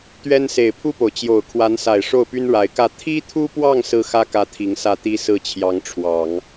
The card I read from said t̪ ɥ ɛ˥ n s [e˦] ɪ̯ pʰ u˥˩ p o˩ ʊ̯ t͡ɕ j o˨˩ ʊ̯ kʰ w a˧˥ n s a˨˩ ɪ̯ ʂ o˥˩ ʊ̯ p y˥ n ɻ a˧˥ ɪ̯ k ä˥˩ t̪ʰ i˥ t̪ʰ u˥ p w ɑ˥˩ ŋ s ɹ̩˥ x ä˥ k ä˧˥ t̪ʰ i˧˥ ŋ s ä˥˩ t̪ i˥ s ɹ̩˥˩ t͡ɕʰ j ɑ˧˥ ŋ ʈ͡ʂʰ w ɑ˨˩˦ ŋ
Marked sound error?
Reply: yes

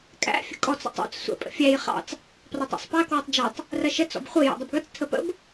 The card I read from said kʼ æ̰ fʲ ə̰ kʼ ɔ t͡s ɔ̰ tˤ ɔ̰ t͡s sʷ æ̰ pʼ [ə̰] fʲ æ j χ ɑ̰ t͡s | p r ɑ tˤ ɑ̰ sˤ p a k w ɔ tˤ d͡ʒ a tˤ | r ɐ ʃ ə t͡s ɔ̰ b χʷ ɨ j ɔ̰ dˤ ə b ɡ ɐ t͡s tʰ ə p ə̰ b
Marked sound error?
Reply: no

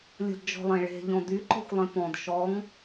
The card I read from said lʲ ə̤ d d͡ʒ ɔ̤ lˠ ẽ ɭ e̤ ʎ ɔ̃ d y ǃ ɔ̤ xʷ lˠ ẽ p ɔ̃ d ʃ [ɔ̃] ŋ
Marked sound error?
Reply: yes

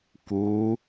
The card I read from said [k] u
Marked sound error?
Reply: no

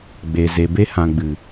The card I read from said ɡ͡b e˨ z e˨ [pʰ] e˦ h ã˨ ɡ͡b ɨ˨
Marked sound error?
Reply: yes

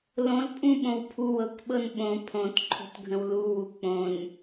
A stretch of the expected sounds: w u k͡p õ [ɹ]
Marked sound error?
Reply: yes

